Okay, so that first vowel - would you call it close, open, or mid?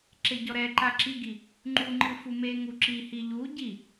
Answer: mid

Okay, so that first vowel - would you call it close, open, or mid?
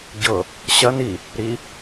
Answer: mid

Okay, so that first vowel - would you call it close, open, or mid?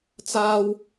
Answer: open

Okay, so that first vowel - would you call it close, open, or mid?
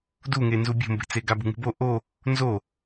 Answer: close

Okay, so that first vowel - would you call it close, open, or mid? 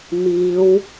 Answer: close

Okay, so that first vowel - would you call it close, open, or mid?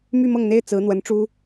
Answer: close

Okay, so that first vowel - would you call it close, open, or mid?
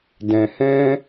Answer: mid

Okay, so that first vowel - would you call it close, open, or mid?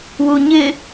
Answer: close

